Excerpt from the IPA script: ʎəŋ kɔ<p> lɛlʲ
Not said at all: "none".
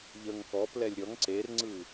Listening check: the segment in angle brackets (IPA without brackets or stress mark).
p